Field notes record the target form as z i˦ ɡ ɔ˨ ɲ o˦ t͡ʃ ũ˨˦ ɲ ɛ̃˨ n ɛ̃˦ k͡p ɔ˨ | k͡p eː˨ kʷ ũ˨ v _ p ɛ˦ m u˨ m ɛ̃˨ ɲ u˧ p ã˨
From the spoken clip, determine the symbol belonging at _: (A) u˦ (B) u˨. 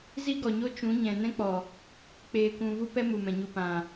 A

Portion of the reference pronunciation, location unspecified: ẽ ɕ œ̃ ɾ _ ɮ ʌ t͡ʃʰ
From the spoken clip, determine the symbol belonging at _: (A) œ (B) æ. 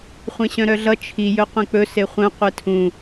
A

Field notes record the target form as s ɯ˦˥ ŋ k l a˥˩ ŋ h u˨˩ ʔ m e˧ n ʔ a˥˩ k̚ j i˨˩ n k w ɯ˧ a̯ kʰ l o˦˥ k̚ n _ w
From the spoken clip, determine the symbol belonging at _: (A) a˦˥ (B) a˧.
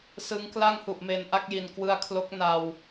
B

